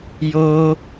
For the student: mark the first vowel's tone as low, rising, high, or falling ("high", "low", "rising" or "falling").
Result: high